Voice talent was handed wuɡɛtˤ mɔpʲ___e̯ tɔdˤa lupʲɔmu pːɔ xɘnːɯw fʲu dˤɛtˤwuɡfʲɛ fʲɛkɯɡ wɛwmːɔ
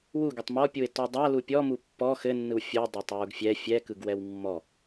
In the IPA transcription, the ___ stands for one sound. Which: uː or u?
u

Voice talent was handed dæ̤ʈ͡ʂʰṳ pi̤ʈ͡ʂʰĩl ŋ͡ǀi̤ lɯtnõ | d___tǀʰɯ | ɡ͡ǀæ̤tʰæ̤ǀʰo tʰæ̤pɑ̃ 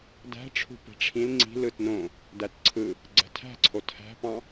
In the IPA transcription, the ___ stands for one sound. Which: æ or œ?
æ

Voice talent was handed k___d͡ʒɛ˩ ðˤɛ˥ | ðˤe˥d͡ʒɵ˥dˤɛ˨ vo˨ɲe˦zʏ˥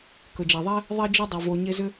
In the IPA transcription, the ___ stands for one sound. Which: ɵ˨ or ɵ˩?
ɵ˩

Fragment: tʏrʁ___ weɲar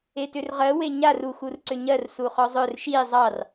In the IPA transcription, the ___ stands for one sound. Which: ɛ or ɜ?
ɜ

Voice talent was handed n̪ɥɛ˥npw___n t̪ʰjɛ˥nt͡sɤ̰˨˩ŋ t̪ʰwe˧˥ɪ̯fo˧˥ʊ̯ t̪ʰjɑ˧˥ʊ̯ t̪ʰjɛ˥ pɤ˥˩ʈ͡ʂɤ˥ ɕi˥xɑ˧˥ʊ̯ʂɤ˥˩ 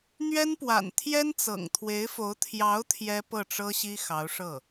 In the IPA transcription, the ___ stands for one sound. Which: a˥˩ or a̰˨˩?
a̰˨˩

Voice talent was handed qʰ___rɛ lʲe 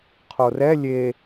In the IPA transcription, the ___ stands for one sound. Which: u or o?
o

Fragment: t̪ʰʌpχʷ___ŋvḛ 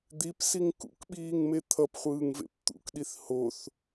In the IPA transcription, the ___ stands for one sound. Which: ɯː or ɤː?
ɯː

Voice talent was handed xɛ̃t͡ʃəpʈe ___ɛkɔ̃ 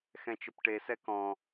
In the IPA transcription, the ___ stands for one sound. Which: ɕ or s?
s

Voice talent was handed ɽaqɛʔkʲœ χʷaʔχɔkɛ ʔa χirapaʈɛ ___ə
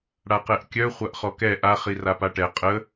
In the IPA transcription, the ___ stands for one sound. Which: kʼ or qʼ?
qʼ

